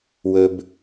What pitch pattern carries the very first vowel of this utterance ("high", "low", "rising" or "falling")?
low